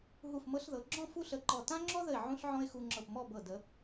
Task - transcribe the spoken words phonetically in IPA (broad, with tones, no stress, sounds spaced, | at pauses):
ɦ u˧˩ f m ɤ˧ ɬ ð ɤ˩˧ ɡ͡ǁ ɔ̃˥˧ f u˥ ɬ ə˧˩ ǃ ɔ˧˩ t ã˥ ŋ͡ǁ ɔ˥ ð ə˧˩ ɪ̯ ʕ ũ˥ ɬ ʕ ɔ̃˥ ɪ̯ x u˧ ŋ͡ǁ ɤ˧˩ p m ɔ˥˧ b ɤ˧˩ d ə˩˧